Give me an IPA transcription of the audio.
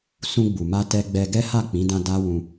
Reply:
s ũ˧ ɡ͡b u˨ m a˧ t ɛ˧ ɡ͡b ɛ˧ ɡ ɛ˦ h a˦˨ k͡p ĩ˨˦ d ã˧ d a˦ w ũ˧

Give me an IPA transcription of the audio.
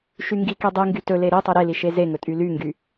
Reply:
ʃ y ŋ ɡ i k i dˤ i ŋ ɡ y t ɵ l e ɾ i tˤ e ɾ e l i ʃ e z e ŋ ɵ tʼ y l y ŋ ɡ y

